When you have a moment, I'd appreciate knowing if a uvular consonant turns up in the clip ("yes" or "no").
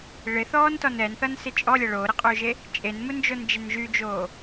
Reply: yes